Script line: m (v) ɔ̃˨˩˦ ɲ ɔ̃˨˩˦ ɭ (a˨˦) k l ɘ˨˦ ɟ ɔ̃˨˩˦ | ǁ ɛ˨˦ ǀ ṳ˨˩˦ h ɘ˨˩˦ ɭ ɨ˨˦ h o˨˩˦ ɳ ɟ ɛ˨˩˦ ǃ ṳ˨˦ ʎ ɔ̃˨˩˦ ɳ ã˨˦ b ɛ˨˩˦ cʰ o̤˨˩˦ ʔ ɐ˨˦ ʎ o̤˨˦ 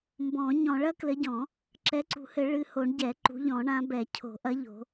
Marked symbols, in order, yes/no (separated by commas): no, no